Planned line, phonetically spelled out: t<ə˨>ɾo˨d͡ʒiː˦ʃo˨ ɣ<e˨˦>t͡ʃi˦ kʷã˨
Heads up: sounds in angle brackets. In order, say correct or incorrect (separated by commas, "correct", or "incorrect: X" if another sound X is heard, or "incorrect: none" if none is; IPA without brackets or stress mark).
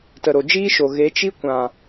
correct, correct